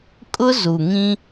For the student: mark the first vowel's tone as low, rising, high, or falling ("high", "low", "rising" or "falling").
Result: high